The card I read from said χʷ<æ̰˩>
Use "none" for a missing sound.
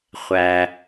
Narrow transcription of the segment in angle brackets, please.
æ˩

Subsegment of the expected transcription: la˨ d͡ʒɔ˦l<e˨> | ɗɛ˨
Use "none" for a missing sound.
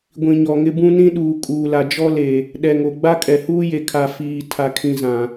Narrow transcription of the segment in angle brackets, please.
e˨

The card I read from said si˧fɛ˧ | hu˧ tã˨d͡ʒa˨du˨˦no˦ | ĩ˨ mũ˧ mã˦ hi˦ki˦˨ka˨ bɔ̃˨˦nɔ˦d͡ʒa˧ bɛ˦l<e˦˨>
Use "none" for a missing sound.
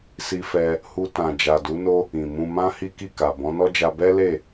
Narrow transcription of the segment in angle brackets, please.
e˦˨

